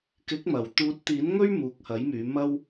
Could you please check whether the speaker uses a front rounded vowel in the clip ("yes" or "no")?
yes